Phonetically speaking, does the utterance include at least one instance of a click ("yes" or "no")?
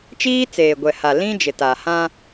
no